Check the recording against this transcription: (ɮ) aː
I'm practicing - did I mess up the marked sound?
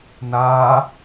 yes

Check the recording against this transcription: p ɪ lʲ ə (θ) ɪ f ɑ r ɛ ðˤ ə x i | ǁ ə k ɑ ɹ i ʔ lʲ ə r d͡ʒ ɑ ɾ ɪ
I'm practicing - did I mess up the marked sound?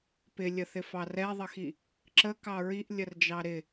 no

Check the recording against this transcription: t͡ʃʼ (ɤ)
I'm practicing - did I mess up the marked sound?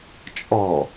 yes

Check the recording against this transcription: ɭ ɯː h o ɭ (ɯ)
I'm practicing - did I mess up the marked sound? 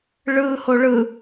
no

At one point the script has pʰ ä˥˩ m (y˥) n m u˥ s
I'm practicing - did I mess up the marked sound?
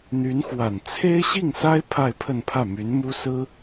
yes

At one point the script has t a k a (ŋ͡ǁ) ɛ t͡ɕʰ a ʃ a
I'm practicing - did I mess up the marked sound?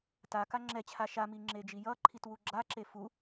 no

